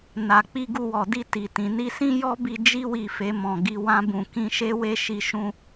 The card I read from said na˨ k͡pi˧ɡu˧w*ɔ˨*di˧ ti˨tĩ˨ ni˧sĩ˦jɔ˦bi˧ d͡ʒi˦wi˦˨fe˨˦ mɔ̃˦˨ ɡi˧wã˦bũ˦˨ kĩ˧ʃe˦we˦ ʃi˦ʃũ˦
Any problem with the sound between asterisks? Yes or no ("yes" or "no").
no